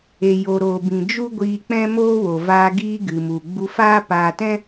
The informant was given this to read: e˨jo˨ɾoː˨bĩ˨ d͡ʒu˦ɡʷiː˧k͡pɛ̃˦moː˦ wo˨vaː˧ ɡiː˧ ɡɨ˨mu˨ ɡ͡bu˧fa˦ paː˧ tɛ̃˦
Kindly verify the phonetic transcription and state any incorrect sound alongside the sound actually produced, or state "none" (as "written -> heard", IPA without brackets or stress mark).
a˦ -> aː˦